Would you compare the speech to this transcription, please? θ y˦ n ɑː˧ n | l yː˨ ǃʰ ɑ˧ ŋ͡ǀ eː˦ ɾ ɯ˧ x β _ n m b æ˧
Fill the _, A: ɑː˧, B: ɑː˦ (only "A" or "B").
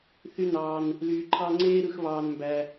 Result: A